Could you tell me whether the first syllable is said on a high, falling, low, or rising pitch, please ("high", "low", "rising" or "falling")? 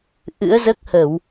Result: rising